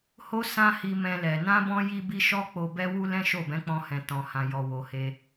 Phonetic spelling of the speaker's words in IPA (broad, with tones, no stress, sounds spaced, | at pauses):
h o˦ s ã˦ h i˧ m ɛ̃˧ l ɛ˨ n ã˧ b ɔ̃˧ j i˦ b i˦ ʃ ɔ˦ k͡p o˧ b ɛ˦ w u˦ l ɛ̃˦ ʃ o˦˨ b ɛ̃˨˦ k͡p ɔ̃˧ h ɛ̃˨ t ɔ̃˨ h ã˨ j ɔ˨ w o˨ h e˧